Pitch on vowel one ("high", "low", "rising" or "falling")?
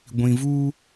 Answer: low